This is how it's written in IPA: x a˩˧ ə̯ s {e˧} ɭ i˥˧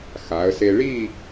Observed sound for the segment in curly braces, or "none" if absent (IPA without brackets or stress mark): e˧